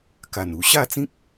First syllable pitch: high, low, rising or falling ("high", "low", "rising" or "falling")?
low